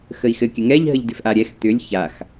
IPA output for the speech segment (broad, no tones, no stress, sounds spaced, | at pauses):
x ə i̯ x ɘ kʲ ɘ ŋ ɛ ʎ ɦ ə ʎ d ʏ f ʔ a ɾʲ ɛ x t̪ ʏ lʲ ç a x